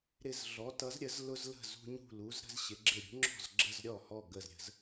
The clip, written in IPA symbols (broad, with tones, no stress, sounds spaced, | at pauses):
ɾ ɪ˧˩ z ɮ ɔ˩˧ t ʌ˩˧ z ɾʲ ə˩˧ z l ʊ˧ z l ə̤˧˩ z ṳ˧ ɲ ṳ˧˩ l u˩˧ z ɾ ə̤˧ z ɕ ɪ˩˧ ɡ͡ǁ ɪ˧˩ ɾʲ ṳ˩˧ ŋ͡ǁ ɔ̤˧˩ z ɡ͡ǁ ə˧˩ z ɾʲ ɔ˧˩ h ɔ˧˩ ɡ ə˧˩ z ɾʲ ə̤˩˧ z